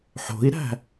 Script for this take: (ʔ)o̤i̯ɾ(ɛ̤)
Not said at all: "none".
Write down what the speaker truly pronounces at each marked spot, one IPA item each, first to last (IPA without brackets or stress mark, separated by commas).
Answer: ħ, æ̤